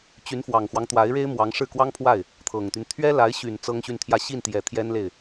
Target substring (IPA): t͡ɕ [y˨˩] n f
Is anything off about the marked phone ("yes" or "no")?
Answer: yes